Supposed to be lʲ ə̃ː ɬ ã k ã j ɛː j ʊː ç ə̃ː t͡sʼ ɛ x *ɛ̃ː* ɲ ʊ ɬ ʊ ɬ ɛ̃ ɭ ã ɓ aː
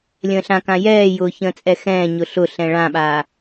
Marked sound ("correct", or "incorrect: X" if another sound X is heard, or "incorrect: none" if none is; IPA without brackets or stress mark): correct